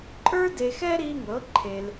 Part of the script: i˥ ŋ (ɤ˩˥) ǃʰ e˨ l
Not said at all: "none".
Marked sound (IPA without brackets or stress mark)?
ɤ˩˥